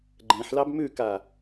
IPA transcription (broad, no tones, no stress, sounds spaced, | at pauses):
ɡ͡ǃ ẽ ħ l ɑ b m ʉ k a